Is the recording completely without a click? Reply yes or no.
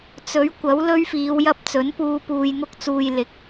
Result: yes